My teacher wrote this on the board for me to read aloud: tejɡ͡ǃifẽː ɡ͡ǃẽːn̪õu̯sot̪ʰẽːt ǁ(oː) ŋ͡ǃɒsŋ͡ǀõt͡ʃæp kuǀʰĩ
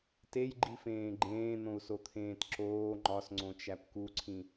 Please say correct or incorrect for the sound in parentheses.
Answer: correct